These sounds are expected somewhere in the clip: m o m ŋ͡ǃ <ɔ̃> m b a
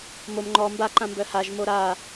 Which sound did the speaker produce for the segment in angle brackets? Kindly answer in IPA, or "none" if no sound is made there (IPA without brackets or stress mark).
ɔ